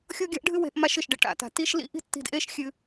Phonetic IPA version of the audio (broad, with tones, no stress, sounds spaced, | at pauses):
xʲ o˥ ɡʲ a̤˥ ʔ ɖʱ ɨ˥ w e̤˧ ʔ m a˥ ʃ ɨ˩ ʃ ɖ e˧ ʈ a̰˩ t a̤˩ t i˥ ʃ l ḭ˥ ʔ i̤˥ tː i̤˧ d ʔ e˥ ʃ xʲ ɨ˧